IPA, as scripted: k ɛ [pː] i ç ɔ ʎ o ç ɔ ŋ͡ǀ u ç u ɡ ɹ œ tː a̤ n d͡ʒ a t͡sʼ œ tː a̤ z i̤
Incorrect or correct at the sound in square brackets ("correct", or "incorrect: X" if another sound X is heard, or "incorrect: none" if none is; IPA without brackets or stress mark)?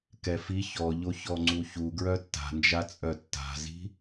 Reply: incorrect: f